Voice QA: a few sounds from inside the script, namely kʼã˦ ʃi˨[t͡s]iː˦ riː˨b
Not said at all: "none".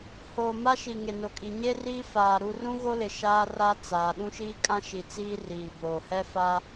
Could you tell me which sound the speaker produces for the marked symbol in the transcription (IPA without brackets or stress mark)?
t͡s